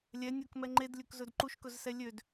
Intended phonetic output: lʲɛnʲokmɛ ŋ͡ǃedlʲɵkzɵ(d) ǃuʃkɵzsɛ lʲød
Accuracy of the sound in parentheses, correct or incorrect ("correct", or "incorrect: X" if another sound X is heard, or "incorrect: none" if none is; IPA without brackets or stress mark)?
correct